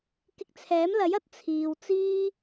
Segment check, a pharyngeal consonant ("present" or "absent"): absent